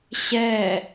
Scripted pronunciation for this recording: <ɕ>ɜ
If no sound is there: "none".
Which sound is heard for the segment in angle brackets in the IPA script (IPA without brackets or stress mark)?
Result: ɕ